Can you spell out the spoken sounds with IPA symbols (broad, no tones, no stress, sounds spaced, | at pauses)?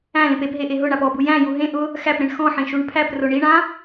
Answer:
æ̃ l ẽ p e p ɦ e ʔ e ɦ ʊ ɳ a p ɔ b u j æ̃ j u ɦ ẽ ʔ ʊ | x æ p ɾ ẽ ɳ x ɔ̃ ħ ẽ ʃ u ɳ pʰ æ p r ʊ ɳ i ɳ ã